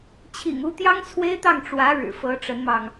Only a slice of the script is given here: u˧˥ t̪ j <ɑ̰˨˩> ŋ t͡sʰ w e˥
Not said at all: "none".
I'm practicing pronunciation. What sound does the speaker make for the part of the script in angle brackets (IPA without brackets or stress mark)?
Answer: ɑ˥